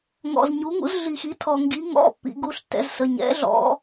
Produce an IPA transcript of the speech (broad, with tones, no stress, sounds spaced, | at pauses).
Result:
ŋ ɔ̰˩ z ɲ u˩˧ ŋ ṵ˩˧ z ɮ i˩ x i˩˧ tʰ ɔ˩ ŋ ɡ i˩˧ ŋ ɔ̰˩˧˩ pː ḭ˩˧ ɡ u˩˧˩ ɬ tː ɛ̰˩˧ z s ə˩˧˩ ɲ ɛ̰˩˧ ɮ ɔ̰˩˧